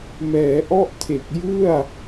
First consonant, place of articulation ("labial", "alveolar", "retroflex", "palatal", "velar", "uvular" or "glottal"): labial